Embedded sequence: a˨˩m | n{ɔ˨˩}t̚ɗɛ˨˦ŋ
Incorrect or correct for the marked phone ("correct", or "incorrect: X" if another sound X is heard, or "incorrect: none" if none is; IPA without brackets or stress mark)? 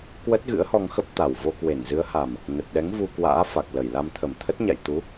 incorrect: ə˨˩